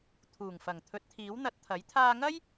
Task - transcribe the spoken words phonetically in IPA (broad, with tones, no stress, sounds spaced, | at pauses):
t̪ʰ uː˨˩ ŋ f ɐ˨˩ ŋ t̪ʰ ɵ˨˥ t̚ t̪ʰ iː˨˥ w n̪ ɐ˧ t̚ t̪ʰ ɐ˨˥ j t̪ʰ aː˧ ŋ ɐ˥ j